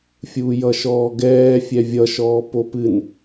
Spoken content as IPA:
fʲ uː j ʌ ʃ ɔː ɡ ɛː fʲ ɛ vʲ ʌ ʃ ɔː p o p ɨ n

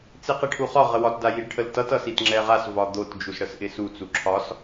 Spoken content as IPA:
t͡s i q i ʈʰ u χ ɒ ʁ ə w ɒ t d a j i ɖ ʈʰ ə l t ʌ t ʌ s i t ŋ͡ǁ ɛ ʁ a s v ɒ d̪ o t d͡ʒ u s ɽ ə s ʔ ɪ s u t͡s u ǁʰ ɒ s

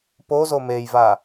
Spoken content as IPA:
p o z o m e j v a

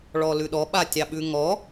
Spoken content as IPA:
ɭ ɔ l ʉ ɗ ɔ ɓ a tʲ ɑ ɓ ʉ ŋ ɔ

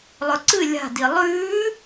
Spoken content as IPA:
lˠ ɵ ǀ ɨ lʲ a̤ d i lˠ ʉː

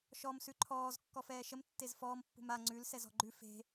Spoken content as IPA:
ʃ ɔ m s ʉ ǃʰ ɔː z kː ɔ f ɛː ʃ ə m tː e z f ɔː m pː ṳ m a ŋ͡ǀ ʉ l s ɛ z ɔ̤ ɡ͡ǃ ʉ f e̤

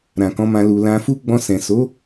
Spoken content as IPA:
ɾ ã˨ k ɔ̃˨˦ m ã˧ l u˨ l ã˧ f u˦ ɡ͡b ɔ̃˧ s ɛ̃˨ s o˨˦

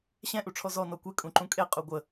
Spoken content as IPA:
ɕ ɛ̃ ʔ u ʈ͡ʂʰ ɔ z ɔ n ɔ kʷ e kʼ ũ ǃ ũ kʼ e qʼ u ɡʷ ə

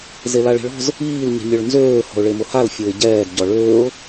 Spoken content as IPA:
z e l a ɭ i̤ ɭ ɔ̤ z | iː l ɲ i̤ mʲ œ ɭ n z øː h ɔ̤ ʊ̯ ɭ e m ʊ h a l fʲ o ɪ̯ ɟ ɛː d ɟ ɔ ɭ øː ʊ̯

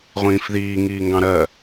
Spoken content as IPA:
ʁʷ ĩː f ð iː ŋ iː ŋ ɡ ɑ̃ ɾ ɜ

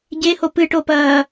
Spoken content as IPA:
ɟ e h o p ɨ ʈ o p ɐː

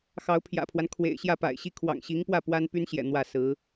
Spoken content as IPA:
x ɑ˧˥ ʊ̯ pʰ j ä̰˨˩ pʰ w a˦ n kʰ w ḛ˨˩ ɪ̯ ɕ j ä˥˩ p a̰˨˩ ɪ̯ ɕ i˥˩ kʰ w ɑ̰˨˩ ŋ ɕ i˧˥ ŋ p w ä˥˩ p w a˥ n p y˥ n ɕ j ɛ̰˨˩ n̪ w ä˥˩ s ɹ̩˧˥

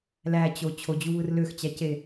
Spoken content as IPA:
l æ t͡ɕ o t͡ɕʰ o d͡ʑ u β ɯ r l ø x t͡ɕ æ c e

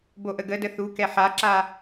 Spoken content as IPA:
b o ʔ ə ɡ ə d ə θ u k ɛ ħ a ǁ a

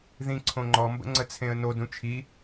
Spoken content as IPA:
ð ĩ ǀʰ õ ŋ͡ǃ ɔ m b ə̰ ŋ͡ǀ ə t͡sʰ ẽ ə̯ n o d ũ t͡ʃʰ i

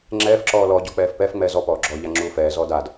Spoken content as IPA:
ŋ͡ǁ ɛː f ǁ ɔː l ɔ ɟ ɔ k͡p ɛː f p ɛ f ŋ͡m ɛː z ɔ p ɔː ɡ͡ǁ ɔ ʎ a ŋ͡ǁ uː f ɛː z ɔː d a d

